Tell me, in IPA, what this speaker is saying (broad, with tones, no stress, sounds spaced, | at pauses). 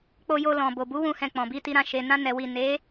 k͡p o˧ j o˧ l ɔ̃˨ b o˨ b u˨˦ w ũ˦˨ h ɛ̃˧ k͡p ɔ̃˨ b i˧ t i˧ ɾ ã˧ ʃ e˨ n ã˧ n ɛ˨ w i˨ n e˨˦